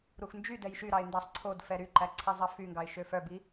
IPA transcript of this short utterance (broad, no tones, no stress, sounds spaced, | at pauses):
ɾ u x n d͡ʒ y d ɛ j ʃ y ɾ ɑ ɪ̯ n d ɑ sˤ ǀʰ o d f ɛ ɾ y ǃ æ ǀʰ ɛ zˤ ɑ f y ŋ ɡ ɑ ɪ̯ ʃ ø f œ b i